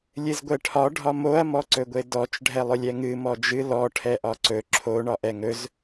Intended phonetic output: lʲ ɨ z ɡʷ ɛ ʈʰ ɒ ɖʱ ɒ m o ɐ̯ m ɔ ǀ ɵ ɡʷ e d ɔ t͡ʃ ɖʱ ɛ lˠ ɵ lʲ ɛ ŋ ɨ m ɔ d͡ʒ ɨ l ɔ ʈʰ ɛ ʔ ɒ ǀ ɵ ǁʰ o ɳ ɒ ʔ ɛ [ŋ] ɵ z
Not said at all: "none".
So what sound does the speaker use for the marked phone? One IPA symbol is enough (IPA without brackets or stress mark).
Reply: ŋ